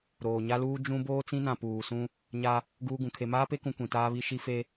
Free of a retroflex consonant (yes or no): yes